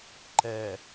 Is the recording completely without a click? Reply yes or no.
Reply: no